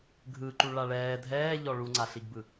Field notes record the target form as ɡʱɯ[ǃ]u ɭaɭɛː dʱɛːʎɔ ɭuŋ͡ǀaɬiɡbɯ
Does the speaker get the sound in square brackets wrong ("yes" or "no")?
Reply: no